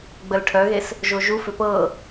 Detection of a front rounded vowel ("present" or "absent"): present